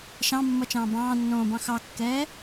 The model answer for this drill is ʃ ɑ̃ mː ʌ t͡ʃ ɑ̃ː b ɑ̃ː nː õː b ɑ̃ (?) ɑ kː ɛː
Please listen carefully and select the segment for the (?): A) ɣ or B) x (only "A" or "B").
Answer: B